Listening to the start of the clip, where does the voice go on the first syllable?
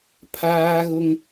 high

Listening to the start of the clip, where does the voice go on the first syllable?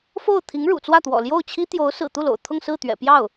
falling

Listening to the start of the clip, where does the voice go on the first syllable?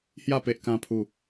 falling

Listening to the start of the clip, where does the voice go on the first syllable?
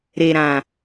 low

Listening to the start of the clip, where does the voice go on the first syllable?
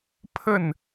falling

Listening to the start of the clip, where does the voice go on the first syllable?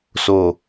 low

